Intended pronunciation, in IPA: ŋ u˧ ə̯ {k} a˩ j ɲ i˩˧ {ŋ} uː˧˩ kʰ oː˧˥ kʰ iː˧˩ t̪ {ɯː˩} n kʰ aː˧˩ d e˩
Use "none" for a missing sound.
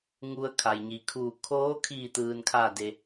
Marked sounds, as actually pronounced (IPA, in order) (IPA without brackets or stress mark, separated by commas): kʰ, kʰ, ɯː˩